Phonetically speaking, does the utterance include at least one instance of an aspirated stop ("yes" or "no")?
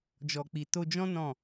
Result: no